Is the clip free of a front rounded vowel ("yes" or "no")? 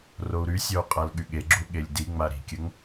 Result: no